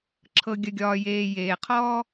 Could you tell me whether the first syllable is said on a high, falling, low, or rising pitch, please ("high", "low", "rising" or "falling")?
low